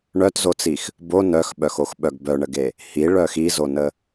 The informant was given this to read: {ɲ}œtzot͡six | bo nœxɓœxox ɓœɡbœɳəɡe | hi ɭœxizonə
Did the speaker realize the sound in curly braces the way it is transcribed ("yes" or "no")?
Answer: no